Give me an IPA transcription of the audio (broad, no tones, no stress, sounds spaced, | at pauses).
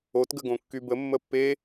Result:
o t ɡ ə ɡ õ kː y b ə mː ə pː e